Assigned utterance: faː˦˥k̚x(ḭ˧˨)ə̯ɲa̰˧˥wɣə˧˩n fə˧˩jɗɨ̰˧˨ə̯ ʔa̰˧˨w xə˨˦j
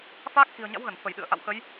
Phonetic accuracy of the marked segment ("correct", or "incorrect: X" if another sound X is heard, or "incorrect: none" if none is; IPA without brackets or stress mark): incorrect: i̤˨˩